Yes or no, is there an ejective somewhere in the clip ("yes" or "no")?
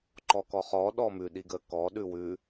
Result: no